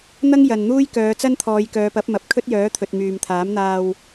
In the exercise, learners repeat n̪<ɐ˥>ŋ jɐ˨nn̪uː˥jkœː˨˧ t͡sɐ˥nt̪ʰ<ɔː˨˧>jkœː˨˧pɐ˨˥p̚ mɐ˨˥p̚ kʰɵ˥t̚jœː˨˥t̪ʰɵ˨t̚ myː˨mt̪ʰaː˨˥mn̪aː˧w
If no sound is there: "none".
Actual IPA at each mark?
ɐ˥, ɔː˨˧

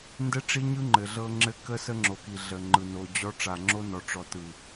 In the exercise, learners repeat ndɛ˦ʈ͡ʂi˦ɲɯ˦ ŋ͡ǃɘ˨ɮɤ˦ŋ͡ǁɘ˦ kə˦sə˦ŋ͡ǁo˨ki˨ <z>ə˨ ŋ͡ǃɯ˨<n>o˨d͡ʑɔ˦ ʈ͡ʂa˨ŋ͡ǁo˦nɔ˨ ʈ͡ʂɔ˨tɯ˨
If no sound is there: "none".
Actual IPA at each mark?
ɮ, n

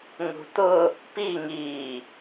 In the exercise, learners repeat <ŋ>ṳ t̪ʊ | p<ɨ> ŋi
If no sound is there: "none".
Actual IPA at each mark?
ŋ, i

